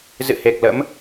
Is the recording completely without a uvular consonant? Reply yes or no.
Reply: yes